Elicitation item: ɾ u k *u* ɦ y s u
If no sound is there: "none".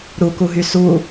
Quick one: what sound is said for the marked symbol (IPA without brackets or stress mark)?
u